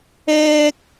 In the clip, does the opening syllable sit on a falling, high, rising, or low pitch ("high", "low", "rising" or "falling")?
high